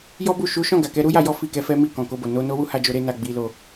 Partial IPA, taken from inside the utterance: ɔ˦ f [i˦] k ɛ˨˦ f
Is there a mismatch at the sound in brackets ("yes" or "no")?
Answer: yes